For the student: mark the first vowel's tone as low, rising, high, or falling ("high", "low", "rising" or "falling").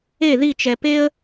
falling